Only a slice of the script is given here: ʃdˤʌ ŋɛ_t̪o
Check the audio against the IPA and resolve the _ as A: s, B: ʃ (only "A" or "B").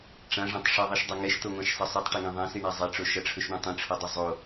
B